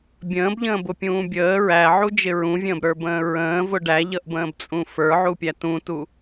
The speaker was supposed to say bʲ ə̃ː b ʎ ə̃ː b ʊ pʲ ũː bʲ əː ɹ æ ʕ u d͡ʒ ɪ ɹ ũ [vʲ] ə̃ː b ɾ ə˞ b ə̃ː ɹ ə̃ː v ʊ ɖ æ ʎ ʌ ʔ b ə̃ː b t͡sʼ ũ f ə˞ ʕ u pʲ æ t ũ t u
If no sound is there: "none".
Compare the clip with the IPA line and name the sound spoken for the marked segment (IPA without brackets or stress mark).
vʲ